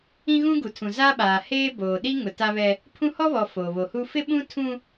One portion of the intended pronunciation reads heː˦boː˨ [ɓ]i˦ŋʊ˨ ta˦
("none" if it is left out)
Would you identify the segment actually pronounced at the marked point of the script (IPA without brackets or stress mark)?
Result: ɗ